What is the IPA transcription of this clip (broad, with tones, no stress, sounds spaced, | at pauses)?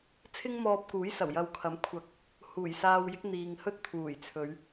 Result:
t͡sʰ ɪ˥ ŋ m ɔː˧ p̚ k uː˨˥ j s ɐ˨˩ w j ɐ˧ w kʰ ɐ˨˥ m kʷʰ ɐ˨˥ k̚ | h uː˨˩ j s aː˧ w j ɪ˨˥ k̚ n̪ iː˨ ŋ h ɵ˥ t̚ t̪ʰ uː˨˩ j t͡sʰ ɵ˨˧ ɥ